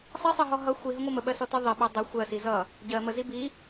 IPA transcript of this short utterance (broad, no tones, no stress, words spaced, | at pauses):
sˤisˤɜɦɔ ɦʌ xʷiɦəŋʷʌ məɓɜsɔtɜ ðˤiɓæ dˤʌ xʷɜsi zʌ | ɟɜ məzi bi